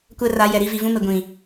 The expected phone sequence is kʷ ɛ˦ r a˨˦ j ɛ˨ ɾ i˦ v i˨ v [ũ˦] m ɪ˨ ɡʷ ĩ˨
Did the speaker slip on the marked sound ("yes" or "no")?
no